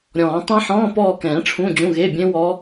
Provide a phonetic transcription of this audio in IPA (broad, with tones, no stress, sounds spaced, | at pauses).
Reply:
ɾʲ ɔ̃ː˨˩˦ tˤ ã˦˥ ħ ɔ̃ː˧˥˧ p ɔː˦˨ k ɛ̃ː˨˩˦ ʈ͡ʂʰ ũ˧˥˧ d͡ʑ ũ˧˥˧ ɣ e˧˥˧ bʲ ẽ˦˥ w ɔ˦˥